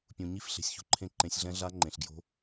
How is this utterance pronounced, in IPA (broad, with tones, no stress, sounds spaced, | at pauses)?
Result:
pʲ ũ˨ ɲ i˦˥ f ɬ e̤˨ sʲ ç ṳ˨ ǃʰ ẽ˦˥ ǃ ẽ˨˦ sʲ ɮ ɛ̃˦˥ ɮ a˦˥ ŋ͡ǃ ẽ˨ ɬ ɡ j o̤˦˥